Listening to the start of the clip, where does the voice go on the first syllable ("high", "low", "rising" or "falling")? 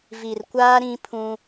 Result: low